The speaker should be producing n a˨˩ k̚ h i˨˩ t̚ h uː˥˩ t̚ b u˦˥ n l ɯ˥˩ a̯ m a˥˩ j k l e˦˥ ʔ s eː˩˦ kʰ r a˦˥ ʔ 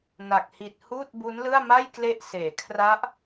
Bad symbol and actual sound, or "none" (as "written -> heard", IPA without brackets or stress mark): none